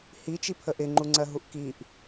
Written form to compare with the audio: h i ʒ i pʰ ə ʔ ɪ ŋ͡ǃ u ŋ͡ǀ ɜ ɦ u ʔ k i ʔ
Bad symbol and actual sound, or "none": ʒ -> t͡ʃ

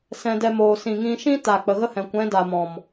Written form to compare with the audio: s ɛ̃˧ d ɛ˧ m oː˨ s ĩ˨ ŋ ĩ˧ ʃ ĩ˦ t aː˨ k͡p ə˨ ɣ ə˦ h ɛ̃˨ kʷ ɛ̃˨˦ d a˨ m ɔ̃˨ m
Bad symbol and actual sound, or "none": none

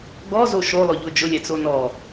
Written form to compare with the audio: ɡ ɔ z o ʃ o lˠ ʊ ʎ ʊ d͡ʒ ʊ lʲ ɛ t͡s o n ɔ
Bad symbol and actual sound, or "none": none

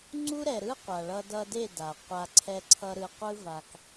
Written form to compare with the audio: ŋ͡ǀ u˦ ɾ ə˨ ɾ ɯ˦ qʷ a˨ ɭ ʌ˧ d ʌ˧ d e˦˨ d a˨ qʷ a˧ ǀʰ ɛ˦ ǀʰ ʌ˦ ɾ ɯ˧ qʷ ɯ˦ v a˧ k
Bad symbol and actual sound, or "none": ə˨ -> ɛ˨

